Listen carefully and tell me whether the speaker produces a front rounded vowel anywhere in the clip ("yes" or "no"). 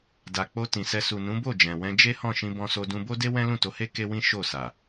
no